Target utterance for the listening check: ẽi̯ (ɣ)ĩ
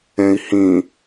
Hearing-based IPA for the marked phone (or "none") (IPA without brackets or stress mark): h